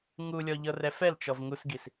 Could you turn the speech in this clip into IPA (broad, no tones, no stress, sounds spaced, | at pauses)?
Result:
ŋ u lʲ ɔ ʎ ɤ r ɛ f ɛ l t͡ʃ ɔ v ŋ u s ɡ i s